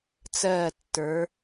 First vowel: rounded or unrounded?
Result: unrounded